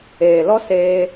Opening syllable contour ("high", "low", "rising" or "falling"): low